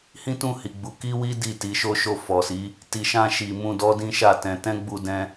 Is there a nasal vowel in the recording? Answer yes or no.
yes